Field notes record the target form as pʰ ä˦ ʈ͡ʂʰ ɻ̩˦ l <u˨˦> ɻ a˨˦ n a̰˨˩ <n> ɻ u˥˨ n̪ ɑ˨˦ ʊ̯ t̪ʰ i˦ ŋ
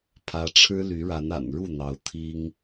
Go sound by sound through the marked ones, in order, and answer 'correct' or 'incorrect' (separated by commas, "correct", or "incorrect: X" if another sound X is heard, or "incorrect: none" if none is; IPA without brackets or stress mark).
incorrect: y˨˦, correct